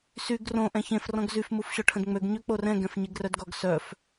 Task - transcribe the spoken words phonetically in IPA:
s y ɡ r õ ʔ ɛ̃ ç ẽ f r ɔ̃ ɡ z y f m u f ɕ ɔ ʈʰ ə̃ d ŋ͡m ø ɡ ɲ ø k͡p o r ɛ̃ ɡ ɛ̃ f ɲ e ɡ r œ d ɡ ɔ ɡ s œ f

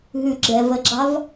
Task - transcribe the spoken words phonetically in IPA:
ɦ ʉ ɡ͡ǁ ɛ v ə ɡ͡ǁ ɑ v

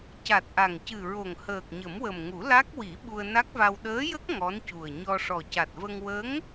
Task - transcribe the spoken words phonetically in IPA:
c a˨˩ t̚ ʔ a˨˩ ŋ c ɨ˨˩ ɹ o˨˩ ŋ h əː˨˩ k̚ ɲ ə˨˩˦ m w ə˨˩ m ŋ u˨˩˦ l a˦˥ k̚ w i˨˩˦ ɓ u˧ ə̯ n a˦˥ k̚ v a˧ w ɗ əː˧˥ j ə˦˥ k̚ ŋ ɔ˧˥ n c u˨˩ ə̯ ɲ ɔ˧ ʂ ɔ˨˩ c a˨˩ t̚ v ə˧ ŋ w ə˧˥ ŋ

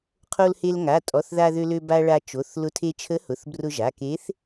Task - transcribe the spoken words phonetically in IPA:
qʰ o˧ l h e˧ l ŋ a˩˧˩ tʼ ɔ˩˧˩ θ ð a˧ ð ø˧ l ø˧ b a˧ ɭ a˧ t͡ʃ o˩˧˩ θ l ʊ˧˥ tʰ e˧ t͡ʃʰ ə˧˥ h ʊ˩˧˩ θ b r ʊ˧ ʒ a˩˧˩ k e˧˥ θ

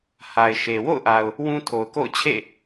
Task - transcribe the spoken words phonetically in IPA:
h a˨ ɪ̯ ʃ e˨ w o̰˦˨ ʊ̯ ʔ a˨ ʊ̯ | w ũ˦ tʰ o˨ ʊ̯ k o̰˦˨ ʊ̯ t͡ɕʰ ḛ˦˨

